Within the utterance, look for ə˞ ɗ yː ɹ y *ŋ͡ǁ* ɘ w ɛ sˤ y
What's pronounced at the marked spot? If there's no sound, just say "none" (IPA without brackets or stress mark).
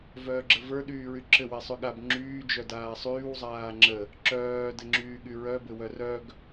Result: ǁ